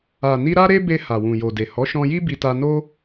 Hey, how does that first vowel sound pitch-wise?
low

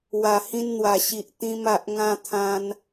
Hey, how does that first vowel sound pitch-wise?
low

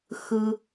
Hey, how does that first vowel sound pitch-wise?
high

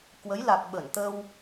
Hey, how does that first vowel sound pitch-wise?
rising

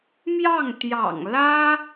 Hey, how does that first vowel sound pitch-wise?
falling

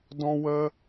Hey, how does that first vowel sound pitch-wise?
high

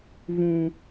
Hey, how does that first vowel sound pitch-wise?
high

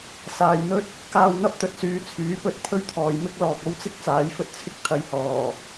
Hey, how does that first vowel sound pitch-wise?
low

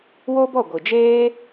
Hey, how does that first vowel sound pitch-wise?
high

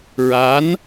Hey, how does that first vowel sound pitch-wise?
rising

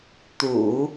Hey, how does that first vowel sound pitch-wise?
low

